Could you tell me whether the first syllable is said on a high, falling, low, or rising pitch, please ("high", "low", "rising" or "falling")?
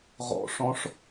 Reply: low